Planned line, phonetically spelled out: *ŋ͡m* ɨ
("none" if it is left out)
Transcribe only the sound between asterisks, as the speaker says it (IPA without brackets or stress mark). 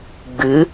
ɡ͡b